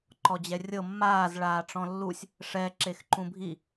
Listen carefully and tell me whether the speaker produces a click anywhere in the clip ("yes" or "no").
yes